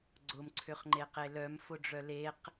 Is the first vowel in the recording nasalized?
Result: no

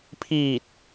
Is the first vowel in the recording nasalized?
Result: no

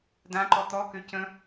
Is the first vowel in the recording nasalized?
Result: yes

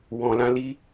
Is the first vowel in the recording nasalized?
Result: yes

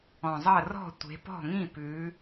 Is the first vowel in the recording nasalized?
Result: yes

